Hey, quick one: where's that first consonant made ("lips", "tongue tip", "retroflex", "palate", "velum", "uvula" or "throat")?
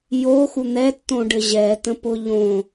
palate